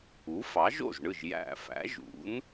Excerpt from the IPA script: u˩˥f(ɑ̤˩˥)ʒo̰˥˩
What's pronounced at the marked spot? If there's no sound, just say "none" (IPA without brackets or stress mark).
ɑ˩˥